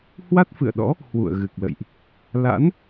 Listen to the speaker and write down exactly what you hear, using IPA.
h w a˦˥ t̚ f ɨ̰˧˨ ə̯ ɗ ɔ̰˧˥ | h w ṵ˧˨ ə̯ ɣ ɨ˨˩ k̚ l ə̰˧˨ j ʔ | l a̰˧˥ n

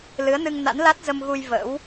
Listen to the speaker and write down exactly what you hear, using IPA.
l ɨ˨˦ ə̯ n ɨ˧ ŋ n a̰˧˥ n l a˦˥ t̚ z ə˧ m ɣ u˧ j v ə̰˧˥ w

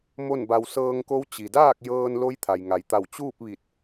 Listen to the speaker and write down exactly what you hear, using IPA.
m o˥˨ n b a˧ w s ɤː˧ ŋ k o˧˥ w t͡ɕ i˩ d aː˥˨ k̚ j ɤː˧ n l o˧˥ j t̪ʰ a˩ j ŋ a˩ j t̪ a˧˩ w t͡ɕ uː˥˨ p̚ ʋ i˧˩ t̚

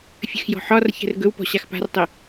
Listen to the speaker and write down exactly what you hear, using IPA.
fʲ ə x j ɔ̤ ħ ɒ r ç ɛ̤ r ɡ ɵ w p ɔ̤ ɕ a x p a̤ r tˤ e

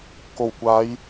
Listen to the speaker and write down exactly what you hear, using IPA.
k o˨˩ w kʷ aː˨˧ j

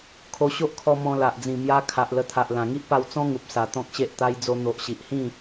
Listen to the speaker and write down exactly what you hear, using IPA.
kʰ o˧ ɕ o˦ ʔ kʰ ɔ˧ m ɔ̃˧ l a˨ ʔ d͡z ĩ˨˩ m j a˧ kʰ a˨ ʔ l ə˧ t̪ʰ a˨ ʔ l ã˨˩ ŋ i˦ ʔ p a˧ w t͡s ɔ̃˦ ŋ u˨ p̚ s a˨˩ t̪ ɔ̃˦ k̚ ɕ e˦ ʔ t̪ a˧ j d͡z o˧ n̪ o˨ ʔ ɕ i˨ ʔ h ĩ˥˧

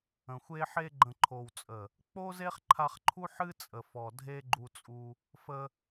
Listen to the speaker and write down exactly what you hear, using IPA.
ə̃˨ xʷ e˦ ħ e˧ ɡ͡ǃ ə̃˨ ǃʰ o˨ w t͡sʼ ə˨ | k͡p o˦ z e˦ χ ǃʰ a˧ χ ǃʰ u˦ ħ ɨ˦ t͡sʼ ə˨ f ɔ˨ dʱ e˦ ɡ͡ǃ u˧ t͡sʼ u˧ | f ə˧

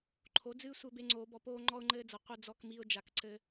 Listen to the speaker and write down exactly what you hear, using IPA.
ǃʰ o˩˧ d͡z ɨː˧ sʷ ɘː˧ b e˧ ŋ͡ǀ oː˩˧ b ɔ˩˧ p oː˧ ŋ͡ǃ ɔ˧ ʊ̯ ŋ͡ǃ ɘː˧ d͡z ɐ˩˧ qʷ ɘ˧ d͡z ɔ˧ k m i˧ ʊ̯ d͡ʒ a˩˧ k ǀ ɘ˧

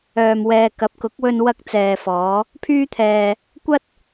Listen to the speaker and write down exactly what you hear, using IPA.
œː˧ m w ɛː˧ k ɐ˨˥ p̚ k ʊ˨˥ k̚ w ɵ˧ n w ɐ˧ k̚ t͡s ɛː˨ f ɔː˨˧ | pʰ yː˥ t̪ʰ ɛː˧ | kʷ ɐ˥ t̚

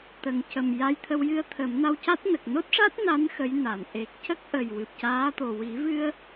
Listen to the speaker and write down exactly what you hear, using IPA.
t̪ ə˨˩ ŋ c ə˨˩ m j a˧ j t̪ʰ ə˧ w j ɨ˧ ə̯ t̪ʰ ə˨˩˦ m n a˧ w c a˦˥ t̚ n ə˨˩ k̚ n o˦˥ t̚ ʂ a˦˥ t̚ n a˧˥ n x ə˧˥ j n a˨˩˨ n ʔ e˨˩ k̚ c ə˦˥ k̚ ʔ ə˨˩ j w ɨ˨˩ p̚ c aː˧˥ t̪ o˨˩ w i˨˩˦ v ɨ˧ ə̯

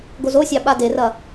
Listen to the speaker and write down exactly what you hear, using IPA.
ɡ o z o sʲ ɑ ɓ a d e r ɐ

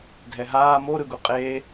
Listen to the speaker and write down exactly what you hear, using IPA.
dʱ ɛ ɦ aː m o ɾ ɯ ɡ u qʼ eː

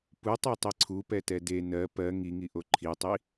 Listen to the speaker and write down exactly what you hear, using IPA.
p u tˤ ɛ tˤ i ǀʰ u p ɛ t ɛ d e n ɜ p ɜ ŋ i ŋ i ʔ o ǃʰ i tˤ i

